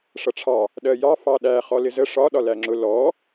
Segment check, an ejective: absent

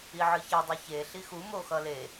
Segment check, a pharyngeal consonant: present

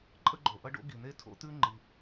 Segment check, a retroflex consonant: present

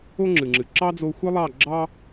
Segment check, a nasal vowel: absent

